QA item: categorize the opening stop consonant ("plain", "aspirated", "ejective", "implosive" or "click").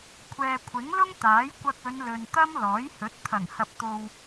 aspirated